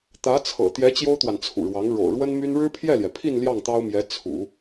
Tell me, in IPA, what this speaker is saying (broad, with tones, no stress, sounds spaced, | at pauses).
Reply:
t̪ ä˧˥ t͡sʰ ɤ̰˨˩ t̪ j ɛ˧˥ t͡ɕ j o˥ ʊ̯ t̪ w a˨ n t͡sʰ ṵ˨˩ ɻ w ɑ˧˥ ŋ ɻ o̰˨˩ ʊ̯ ɻ w ə˥ n m y˥ n ɻ ɻ̩˥ pʰ j ɛ˥˩ l j ɛ˩ pʰ i˥˧ n l j ɑ˥˩ ŋ t̪ ɑ˥ ʊ̯ m j ɛ˧˥ t͡sʰ ṵ˨˩˦